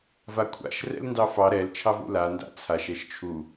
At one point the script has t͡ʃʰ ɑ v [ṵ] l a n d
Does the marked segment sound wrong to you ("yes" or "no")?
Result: no